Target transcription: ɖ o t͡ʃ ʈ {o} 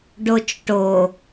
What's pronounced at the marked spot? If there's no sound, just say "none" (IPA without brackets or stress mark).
o